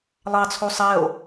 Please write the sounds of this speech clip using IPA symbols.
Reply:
lˠ ɑ t͡sʰ o sˤ ɛ o̯

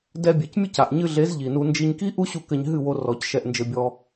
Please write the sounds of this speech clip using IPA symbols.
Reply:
d ɛ˧ bʲ e˨ c mʲ ɨ˦˨ c a˨ ʔ ɲ ɨ˧ ɮ e˨˦ z ʎ i˨ n u˧ n d͡ʒ i˧ ɲ k i˦ ʔ u˦ ɕ u˧ k ɘ˧ ɲ ɦ ɨ˦˨ w o˧ r ɔ˨˦ c ʃ ɛ˧ ʔ n d͡ʒ ɘ˧ bʲ ɔ˧

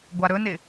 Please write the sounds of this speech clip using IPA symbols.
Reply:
ɡʷ a ɾ ɵ n ɪ

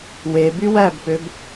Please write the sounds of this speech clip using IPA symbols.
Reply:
w e b y w æ b p ø b

